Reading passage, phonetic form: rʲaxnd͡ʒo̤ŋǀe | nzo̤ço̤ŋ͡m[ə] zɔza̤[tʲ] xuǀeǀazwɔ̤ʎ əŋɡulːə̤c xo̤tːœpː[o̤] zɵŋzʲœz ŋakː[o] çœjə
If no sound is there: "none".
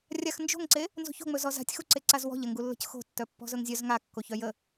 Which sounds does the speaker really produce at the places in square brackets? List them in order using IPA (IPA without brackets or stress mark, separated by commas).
ɵ, tʲ, ɔ̤, o